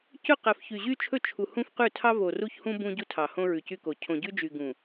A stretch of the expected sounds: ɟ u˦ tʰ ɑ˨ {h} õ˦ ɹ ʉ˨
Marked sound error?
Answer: no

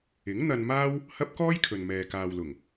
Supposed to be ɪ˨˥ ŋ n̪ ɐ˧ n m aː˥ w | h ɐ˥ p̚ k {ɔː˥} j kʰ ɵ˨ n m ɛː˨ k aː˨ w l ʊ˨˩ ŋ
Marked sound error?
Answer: no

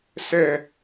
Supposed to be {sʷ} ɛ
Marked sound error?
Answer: yes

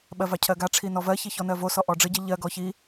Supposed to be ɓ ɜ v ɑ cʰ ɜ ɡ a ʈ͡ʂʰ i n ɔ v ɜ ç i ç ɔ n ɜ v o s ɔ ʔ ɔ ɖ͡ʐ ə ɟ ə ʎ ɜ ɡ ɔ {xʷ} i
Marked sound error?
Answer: yes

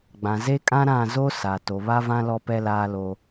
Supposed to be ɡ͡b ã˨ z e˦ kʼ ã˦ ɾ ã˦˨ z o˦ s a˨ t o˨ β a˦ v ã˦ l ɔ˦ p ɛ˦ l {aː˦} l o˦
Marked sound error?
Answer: no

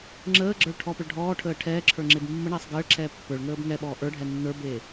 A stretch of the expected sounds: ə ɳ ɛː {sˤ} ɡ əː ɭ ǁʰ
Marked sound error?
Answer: no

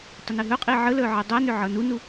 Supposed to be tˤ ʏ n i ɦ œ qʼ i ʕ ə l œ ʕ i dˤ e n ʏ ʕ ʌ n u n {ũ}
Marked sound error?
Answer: yes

